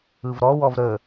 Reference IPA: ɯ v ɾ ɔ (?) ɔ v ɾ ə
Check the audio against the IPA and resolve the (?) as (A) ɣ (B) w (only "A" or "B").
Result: B